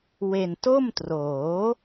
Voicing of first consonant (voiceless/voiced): voiced